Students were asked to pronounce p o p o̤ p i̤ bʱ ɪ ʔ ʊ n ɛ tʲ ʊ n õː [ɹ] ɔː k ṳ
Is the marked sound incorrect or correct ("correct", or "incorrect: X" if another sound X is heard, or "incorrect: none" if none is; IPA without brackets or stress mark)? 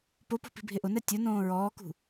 correct